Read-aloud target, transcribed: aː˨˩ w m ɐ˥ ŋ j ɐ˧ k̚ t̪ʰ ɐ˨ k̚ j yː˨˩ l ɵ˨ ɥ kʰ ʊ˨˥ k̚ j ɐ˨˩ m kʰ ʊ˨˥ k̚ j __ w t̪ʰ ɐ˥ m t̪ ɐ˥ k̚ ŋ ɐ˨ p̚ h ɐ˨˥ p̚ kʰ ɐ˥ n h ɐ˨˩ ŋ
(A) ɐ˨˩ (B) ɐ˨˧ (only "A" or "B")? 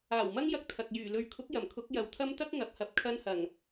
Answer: B